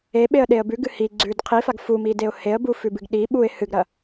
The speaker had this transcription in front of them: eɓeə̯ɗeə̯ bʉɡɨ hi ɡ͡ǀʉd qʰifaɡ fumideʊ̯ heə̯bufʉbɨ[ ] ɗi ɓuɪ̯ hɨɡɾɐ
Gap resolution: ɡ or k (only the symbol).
ɡ